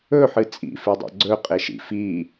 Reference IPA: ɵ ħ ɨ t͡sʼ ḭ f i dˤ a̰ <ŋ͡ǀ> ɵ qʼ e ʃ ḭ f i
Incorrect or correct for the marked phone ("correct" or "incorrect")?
incorrect